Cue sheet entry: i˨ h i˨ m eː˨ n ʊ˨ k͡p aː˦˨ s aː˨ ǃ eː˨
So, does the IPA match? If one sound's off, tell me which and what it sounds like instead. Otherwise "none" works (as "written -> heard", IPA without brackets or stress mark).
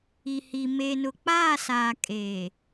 ǃ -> kʼ